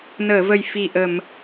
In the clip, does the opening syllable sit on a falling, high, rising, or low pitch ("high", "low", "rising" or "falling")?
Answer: low